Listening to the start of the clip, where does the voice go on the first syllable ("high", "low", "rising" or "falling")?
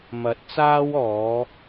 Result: rising